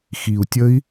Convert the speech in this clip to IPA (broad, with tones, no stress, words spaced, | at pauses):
xi˨˩u̯tʲə˦˥i̯